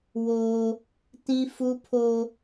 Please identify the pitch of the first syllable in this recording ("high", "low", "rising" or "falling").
high